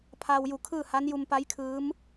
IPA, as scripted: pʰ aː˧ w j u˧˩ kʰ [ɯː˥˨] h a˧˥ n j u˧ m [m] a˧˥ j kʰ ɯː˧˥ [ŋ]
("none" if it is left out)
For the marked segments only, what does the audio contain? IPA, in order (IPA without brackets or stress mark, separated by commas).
ɯː˥˨, p, m